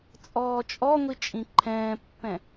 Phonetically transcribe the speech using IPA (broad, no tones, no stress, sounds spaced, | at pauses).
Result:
t͡sʼ ɔː t͡ʃʼ ɔ ŋʷ i t͡ʃʼ ĩ ǃʰ ɛ̃ː pː ɛ̃